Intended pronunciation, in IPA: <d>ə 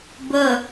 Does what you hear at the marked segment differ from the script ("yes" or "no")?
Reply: yes